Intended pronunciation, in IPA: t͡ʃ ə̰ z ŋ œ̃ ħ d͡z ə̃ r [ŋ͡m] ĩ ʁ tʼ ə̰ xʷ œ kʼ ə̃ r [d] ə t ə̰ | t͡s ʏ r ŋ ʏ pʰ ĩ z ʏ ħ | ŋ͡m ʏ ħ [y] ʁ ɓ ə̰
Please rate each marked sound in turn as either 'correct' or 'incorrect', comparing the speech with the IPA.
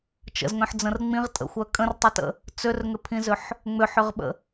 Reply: correct, incorrect, incorrect

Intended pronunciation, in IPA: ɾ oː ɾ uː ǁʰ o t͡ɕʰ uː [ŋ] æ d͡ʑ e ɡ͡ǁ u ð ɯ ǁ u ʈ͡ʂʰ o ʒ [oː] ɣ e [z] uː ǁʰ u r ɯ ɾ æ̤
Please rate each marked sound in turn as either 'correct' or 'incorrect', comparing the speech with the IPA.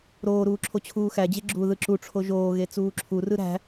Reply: incorrect, correct, incorrect

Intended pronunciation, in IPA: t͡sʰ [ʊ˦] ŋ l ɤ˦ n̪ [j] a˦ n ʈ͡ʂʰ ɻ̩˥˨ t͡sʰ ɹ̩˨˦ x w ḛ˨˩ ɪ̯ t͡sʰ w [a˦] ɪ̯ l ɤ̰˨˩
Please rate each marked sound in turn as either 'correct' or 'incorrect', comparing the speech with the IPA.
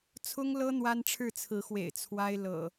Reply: correct, incorrect, correct

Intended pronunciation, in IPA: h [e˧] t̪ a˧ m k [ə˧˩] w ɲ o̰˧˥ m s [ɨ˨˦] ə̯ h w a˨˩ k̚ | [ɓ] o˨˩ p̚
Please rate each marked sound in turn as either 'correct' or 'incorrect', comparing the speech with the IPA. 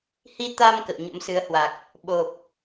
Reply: incorrect, incorrect, correct, correct

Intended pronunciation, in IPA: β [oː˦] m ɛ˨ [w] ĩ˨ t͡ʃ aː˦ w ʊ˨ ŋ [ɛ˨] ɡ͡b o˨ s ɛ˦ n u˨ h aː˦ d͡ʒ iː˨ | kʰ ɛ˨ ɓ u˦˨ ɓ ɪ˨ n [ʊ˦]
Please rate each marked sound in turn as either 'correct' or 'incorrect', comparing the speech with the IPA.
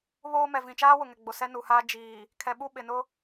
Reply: correct, incorrect, correct, correct

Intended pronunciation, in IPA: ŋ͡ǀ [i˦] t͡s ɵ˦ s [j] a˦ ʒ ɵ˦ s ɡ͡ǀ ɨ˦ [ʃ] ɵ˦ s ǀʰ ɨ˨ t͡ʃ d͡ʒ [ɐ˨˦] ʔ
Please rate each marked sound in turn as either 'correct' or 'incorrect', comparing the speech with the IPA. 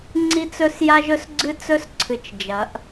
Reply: correct, correct, incorrect, correct

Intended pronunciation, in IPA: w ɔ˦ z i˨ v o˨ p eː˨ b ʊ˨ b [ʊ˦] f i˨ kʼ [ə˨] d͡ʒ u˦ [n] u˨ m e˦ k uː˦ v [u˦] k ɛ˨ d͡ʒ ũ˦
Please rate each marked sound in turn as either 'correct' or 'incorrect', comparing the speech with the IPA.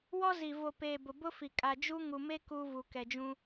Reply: correct, incorrect, incorrect, incorrect

